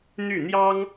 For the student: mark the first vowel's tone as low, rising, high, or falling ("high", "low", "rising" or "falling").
falling